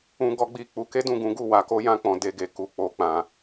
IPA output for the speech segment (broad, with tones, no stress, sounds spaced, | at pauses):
ũ˦ ɡ ɔ˦ ɡ͡b i˦˨ k͡p u˨˦ k e˦ d ũ˦˨ ɡ ũ˨˦ ɡ u˦˨ w a˨˦ k o˦ j ã˦ k͡p ɔ̃˧ d e˧ ɡ e˨ k u˨ k͡p o˨ k͡p ã˨